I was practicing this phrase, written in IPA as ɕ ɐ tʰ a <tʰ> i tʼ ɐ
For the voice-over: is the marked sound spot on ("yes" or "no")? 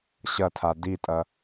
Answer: no